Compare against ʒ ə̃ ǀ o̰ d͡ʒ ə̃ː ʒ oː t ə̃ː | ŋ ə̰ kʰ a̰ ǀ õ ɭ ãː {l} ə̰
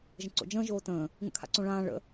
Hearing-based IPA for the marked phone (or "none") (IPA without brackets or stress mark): ɭ